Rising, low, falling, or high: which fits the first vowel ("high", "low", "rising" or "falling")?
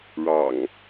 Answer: low